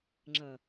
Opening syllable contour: low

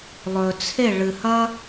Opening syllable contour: low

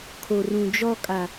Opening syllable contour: low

